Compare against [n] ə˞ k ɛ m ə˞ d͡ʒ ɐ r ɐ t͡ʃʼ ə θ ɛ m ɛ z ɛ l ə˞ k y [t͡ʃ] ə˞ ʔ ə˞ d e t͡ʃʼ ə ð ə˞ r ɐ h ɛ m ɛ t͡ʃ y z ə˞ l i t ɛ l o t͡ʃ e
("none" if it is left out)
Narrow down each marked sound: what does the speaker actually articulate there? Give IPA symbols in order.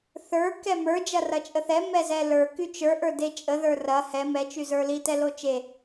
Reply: θ, t͡ʃ

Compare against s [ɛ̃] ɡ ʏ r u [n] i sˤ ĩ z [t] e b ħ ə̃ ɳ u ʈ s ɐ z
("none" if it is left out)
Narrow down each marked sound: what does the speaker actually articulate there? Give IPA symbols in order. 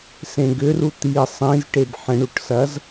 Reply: ẽ, t̪, ʈ

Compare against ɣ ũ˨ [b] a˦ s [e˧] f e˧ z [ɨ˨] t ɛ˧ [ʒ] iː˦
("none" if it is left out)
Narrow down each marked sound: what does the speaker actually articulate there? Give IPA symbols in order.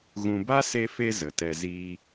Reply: b, e˧, ə˨, z

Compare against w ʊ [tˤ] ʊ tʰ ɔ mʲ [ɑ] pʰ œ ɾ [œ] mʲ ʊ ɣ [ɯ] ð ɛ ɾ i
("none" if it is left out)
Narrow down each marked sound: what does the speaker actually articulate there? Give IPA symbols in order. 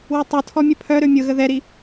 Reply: tˤ, ə, ø, ə

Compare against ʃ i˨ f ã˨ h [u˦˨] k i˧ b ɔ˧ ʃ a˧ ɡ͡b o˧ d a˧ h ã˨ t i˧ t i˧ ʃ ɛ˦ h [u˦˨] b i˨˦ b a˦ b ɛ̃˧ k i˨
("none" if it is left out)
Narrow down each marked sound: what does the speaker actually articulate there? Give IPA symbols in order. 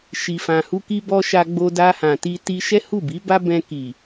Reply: u˧, u˦˨

